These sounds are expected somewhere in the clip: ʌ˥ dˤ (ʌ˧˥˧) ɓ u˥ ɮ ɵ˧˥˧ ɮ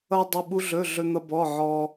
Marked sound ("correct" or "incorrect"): incorrect